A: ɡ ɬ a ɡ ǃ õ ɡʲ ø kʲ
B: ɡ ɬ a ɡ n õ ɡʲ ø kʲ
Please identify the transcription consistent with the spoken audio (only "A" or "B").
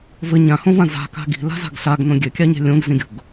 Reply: B